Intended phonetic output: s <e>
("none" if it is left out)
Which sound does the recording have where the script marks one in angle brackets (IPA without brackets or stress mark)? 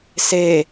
e